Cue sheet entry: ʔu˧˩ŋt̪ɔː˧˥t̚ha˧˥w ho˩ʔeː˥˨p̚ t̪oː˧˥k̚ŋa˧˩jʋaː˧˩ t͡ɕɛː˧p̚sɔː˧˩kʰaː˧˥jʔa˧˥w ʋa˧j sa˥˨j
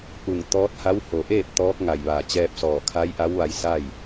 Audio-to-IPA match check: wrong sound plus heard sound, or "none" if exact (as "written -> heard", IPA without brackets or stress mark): oː˧˥ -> ɔː˧˥